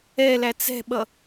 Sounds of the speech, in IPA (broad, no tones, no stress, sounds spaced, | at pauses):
ɛ l æ t͡s ɛ̤ ɓ ʌ